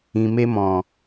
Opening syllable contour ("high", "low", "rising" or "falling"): low